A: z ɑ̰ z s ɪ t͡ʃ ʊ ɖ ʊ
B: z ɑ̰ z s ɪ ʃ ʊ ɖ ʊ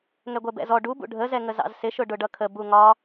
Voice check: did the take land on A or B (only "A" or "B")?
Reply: B